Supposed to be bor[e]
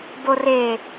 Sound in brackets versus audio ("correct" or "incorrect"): correct